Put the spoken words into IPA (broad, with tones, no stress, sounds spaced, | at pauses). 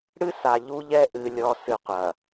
ɽ ɨ˦ s a˨ ʎ u˦ ʎ ɛ˦ ʔ ɨ˨ lʲ ɔ˨ s ɨ˨ qʷ ɐ˨